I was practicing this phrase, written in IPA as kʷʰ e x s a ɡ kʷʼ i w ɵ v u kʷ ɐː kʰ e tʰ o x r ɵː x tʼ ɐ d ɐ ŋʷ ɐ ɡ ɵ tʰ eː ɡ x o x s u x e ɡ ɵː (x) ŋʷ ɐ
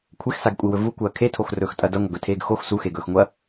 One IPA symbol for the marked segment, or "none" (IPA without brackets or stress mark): x